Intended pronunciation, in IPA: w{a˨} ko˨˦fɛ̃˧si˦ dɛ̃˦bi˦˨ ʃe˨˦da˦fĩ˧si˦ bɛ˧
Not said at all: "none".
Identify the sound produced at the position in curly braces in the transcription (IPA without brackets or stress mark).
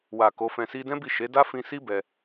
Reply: a˨